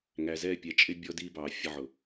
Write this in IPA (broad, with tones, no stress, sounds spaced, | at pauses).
ŋ æ˨ z ɛ˦˨ pʲ ɛ˨ t͡ʃʼ ɪ˦ bʲ ɔ˦ d iː˦ b ɑː˨ fʲ ə˧ ʕ ʊ˨